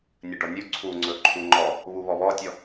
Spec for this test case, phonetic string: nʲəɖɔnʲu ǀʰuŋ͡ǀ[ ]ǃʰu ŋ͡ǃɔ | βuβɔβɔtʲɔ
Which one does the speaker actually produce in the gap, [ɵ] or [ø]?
ɵ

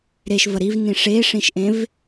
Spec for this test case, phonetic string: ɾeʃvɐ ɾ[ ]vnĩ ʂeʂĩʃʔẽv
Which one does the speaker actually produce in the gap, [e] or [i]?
i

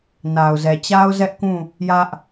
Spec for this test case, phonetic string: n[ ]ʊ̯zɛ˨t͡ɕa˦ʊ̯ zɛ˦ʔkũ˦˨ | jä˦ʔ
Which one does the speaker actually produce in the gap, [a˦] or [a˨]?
a˨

